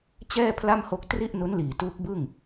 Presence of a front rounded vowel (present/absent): absent